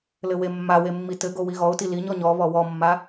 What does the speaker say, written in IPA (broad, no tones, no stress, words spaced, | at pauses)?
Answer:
lɘwemːawe mːitɘɡo wiɣɔʊ̯ti liɲɔɲ ɔ βɔwɔmːa